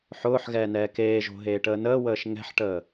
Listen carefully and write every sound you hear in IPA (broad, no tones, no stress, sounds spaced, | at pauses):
ħ ʊː ħ ɣ ɛː n ɛː k eː ʒ o̤ ɦ eː ʈ əː n əː w əː ʃ ŋ ɛ̤ ħ ʈ əː